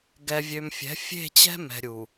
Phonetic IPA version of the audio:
ɡ ɛ˨ vʲ ø˨ m fʲ ɛ̤˨˦ fʲ e̤˦˨ t͡ɕ ɛ̤˦ m ɛ̤˨ ɾʲ u˨

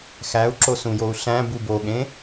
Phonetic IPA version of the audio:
x æ u̯ ǁ o s ũ j o u̯ ɬ æ̃ b u b o ɠ ẽ

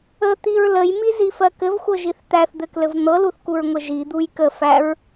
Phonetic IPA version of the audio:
ə t̪ i ɹ l ə j m i z i f ɜ k ɘ v xʷ ɤ ʒ i θ t̪ æ θ d̪ ɘ k l ɘ v n̪ ɤ l u θ k u ɹ ŋʷ ə ʒ i d̪ u j k ə f æ ɹ

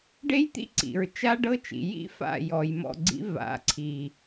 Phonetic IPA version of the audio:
ɖ e˦ j t̪ ḭ˦ ǀ ḭ˨ ɹ t͡ʃ a˦ ɖ ɤ˦ t͡ʃ ḭ˨ j ḭ˦ f a̰˦˨ j ɔ˨ j m ɔ̰˦˨ ɡ͡ǀ ḭ˦ v a̰˨˦ ǀʰ i˨

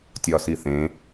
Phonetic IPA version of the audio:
tʲ ɒː s i θ ẽ

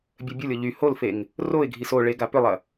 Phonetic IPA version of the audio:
bʲ œ bʲ o lʲ ɔ ʎ y h o l f e ŋ | r o ɪ̯ ɡʱ i s o ɭ e ɡ a p ʏ lˠ ɐ

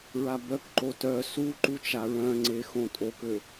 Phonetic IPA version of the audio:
ɹ a b œ k ǃ o t œ s u ǃ u t͡ʃ a ɹ œ̃ ŋ͡ǀ e x õ tʼ o k ø

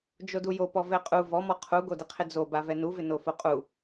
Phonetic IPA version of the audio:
d͡ʒ o d u j o p ɔ v ɛ qʼ u v ɔ m ɔ qʰ u ɡ o d ɪ qʰ ɪ d͡z o b a v ɛ n u v ɪ n o f o qʼ u

